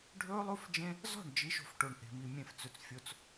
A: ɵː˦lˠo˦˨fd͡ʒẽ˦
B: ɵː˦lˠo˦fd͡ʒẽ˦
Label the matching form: B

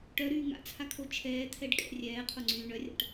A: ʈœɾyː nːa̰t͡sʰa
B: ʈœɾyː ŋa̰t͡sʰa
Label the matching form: B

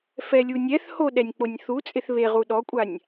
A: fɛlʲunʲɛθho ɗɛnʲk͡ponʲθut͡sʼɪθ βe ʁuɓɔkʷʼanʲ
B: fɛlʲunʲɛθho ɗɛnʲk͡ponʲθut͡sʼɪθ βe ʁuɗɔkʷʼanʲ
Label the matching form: B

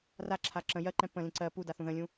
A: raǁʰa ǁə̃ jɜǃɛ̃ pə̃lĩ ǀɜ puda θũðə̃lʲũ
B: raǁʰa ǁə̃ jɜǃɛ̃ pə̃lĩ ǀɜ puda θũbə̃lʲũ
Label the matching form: A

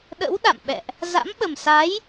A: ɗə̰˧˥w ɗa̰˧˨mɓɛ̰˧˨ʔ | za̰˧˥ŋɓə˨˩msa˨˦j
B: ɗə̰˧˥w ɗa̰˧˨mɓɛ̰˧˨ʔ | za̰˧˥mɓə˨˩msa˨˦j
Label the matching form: B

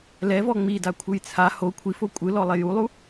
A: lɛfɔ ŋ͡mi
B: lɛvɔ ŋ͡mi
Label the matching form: B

